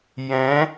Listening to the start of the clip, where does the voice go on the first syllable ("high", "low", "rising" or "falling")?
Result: rising